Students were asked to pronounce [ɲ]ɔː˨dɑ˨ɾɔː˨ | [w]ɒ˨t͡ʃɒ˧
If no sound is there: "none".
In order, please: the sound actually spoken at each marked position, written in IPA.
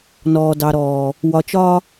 n, w

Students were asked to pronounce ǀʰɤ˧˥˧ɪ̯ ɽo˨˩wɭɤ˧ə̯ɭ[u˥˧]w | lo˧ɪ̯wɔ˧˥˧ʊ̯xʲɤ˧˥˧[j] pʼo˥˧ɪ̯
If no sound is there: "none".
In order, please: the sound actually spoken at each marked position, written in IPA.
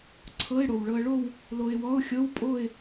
o˥˧, w

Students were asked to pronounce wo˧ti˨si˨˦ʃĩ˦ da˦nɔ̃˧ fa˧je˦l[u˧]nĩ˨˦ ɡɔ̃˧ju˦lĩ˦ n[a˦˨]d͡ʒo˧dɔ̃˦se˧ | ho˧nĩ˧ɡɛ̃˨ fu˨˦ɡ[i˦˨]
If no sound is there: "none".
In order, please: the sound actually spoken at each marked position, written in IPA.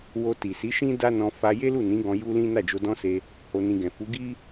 u˦˨, a˦˨, i˦

